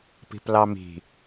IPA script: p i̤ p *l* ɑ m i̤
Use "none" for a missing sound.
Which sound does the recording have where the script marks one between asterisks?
l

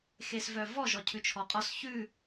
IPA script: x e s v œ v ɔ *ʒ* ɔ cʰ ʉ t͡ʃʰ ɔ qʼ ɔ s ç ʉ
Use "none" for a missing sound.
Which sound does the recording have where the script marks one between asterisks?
ʒ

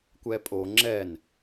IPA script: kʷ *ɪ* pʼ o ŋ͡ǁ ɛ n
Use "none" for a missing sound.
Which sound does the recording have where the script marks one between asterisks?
ɛ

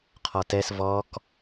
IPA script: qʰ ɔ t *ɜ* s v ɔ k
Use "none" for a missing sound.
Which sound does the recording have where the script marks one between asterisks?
ɛ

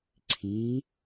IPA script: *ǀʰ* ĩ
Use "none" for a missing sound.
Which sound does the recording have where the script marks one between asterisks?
ǀʰ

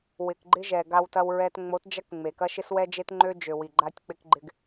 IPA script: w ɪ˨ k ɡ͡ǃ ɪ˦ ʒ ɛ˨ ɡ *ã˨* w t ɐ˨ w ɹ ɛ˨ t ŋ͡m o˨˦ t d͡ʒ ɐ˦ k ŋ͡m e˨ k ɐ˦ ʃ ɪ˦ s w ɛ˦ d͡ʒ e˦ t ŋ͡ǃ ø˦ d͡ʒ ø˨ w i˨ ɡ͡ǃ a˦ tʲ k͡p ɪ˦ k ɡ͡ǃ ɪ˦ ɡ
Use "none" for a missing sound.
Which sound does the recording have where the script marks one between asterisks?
a˨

